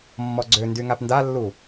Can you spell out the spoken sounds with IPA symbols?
mːɔɡ͡ǀøndy ŋapndalːu

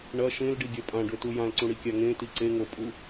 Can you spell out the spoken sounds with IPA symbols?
ɳɐ ʃẽlɖiɡʲɐ pʼãɖɵtu jãlǀũɽikʲa ŋẽti ǀeŋopʼu

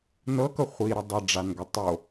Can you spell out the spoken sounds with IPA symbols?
nɤkɤ χʷiɾə dˤɛɖ͡ʐanɡə tˤo

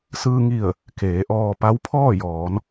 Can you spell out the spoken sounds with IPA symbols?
sɯː˧ŋi˧˩ə̯ | keː˩˧ʔɔː˧ pa˧˥wpʰɔː˥˨jɔː˩˧n

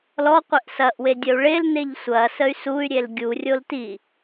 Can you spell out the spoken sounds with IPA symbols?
lɔqʷeʔ sɐʔwe dʲəu̯ɭelneʎ sʷɐ səy̯suy̯ɾʲel ɡʲurʲol ti

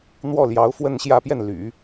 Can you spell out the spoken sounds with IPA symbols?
n̪wɔ˥˩ljɑ˧˥ʊ̯ fwə˥˧nɕjä˥˧pjɛ˥˩nly̰˨˩˦

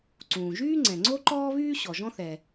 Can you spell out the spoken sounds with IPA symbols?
ǀũː˩ʒyː˥ŋ͡ǀɛ̃˩ ŋ͡ǀo˥ǃɔː˥βyː˥ ɕɔ˩ʒɔ̃˥θɛ˩

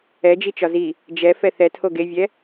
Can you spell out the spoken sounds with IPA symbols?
ɛd͡ʒit͡ʃɒ zi | d͡ʒɛfɛ θɛtʰo ɡevʲɛ

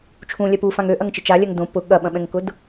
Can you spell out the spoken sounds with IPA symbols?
t͡ʃʰũlʲɛ pufãŋ øʔɐŋt͡ʃɪ t͡ʃalʲɛŋ dõ pʊ ɠɐɓɐ̃ɓɛ̃ŋkʊd

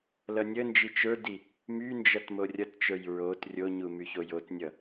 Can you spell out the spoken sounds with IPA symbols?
lʌnʲənd͡ʒi t͡ʃə˞di | mynd͡ʒʌt morʲʌtt͡ʃə˞j ɹot rʲoɲu myçojotnʲʌ

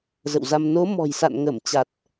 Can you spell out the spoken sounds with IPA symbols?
zə̰˧˨wza˧m no˨˦mɔ̤˨˩jsa̰˧˨n ŋə˧˩mt͡ɕa˨˩t̚

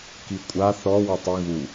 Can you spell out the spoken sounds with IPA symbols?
kikʷʼa θɔ wɔtˤɯ ɣu

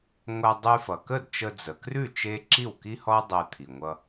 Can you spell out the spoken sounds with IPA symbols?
ŋʷa˧ dˤʉ˧fʌ˩kə˥˩dt͡ʃə˧ d͡zə˩krʉ˥˩ t͡ʃe˥ ǁi˥˩wki˥hɔ˥dˤe˧ t̪ʰi˩ŋʷʌ˧

